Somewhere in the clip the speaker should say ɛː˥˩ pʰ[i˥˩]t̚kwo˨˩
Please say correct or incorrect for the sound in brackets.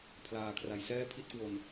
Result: correct